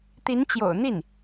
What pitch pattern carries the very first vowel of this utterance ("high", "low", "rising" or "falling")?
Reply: rising